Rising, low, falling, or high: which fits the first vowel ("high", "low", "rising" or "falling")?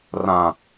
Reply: low